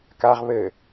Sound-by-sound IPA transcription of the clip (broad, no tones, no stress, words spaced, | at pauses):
kaʁ βɘ